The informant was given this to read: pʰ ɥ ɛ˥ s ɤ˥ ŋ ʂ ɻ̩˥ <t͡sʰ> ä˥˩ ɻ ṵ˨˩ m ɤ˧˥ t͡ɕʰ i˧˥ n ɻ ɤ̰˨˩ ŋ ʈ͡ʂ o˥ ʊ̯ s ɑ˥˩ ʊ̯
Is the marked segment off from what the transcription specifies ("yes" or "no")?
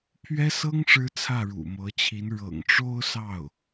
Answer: no